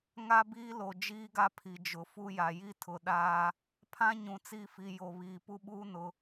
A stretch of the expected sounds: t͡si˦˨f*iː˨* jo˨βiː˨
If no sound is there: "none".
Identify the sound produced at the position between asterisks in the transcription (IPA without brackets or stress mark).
i˨